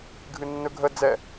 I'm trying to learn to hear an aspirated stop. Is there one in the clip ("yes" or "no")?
no